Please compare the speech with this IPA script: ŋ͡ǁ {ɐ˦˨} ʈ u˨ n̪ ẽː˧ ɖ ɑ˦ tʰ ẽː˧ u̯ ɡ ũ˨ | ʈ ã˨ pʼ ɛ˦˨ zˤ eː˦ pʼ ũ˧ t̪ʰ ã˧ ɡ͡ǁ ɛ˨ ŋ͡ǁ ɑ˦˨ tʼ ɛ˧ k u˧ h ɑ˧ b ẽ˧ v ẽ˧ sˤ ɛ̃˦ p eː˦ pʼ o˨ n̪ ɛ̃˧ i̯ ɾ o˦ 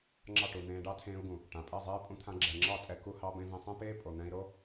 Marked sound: incorrect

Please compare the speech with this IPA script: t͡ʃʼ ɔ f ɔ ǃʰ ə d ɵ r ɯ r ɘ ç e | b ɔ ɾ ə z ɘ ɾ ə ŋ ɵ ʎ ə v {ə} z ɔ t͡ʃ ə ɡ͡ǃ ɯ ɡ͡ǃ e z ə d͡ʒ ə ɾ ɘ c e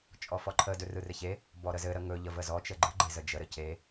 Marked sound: correct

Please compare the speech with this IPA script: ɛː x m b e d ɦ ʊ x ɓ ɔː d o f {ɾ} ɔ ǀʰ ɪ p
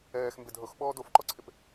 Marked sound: incorrect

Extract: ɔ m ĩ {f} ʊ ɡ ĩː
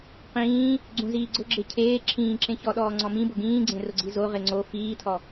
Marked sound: incorrect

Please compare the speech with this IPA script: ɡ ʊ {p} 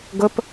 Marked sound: correct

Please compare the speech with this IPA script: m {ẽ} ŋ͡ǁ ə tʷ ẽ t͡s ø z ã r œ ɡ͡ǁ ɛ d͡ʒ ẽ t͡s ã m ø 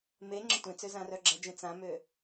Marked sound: incorrect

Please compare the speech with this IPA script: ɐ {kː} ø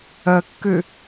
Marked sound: correct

